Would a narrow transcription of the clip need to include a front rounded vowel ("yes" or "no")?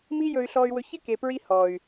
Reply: yes